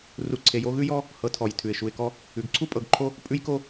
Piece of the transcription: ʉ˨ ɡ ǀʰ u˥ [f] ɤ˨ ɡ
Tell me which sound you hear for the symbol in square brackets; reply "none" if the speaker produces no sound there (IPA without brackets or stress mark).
pʼ